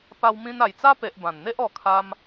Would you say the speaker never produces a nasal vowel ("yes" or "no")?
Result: no